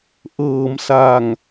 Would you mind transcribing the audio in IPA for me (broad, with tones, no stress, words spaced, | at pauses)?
ʔɤː˩˦msa˨˩ŋ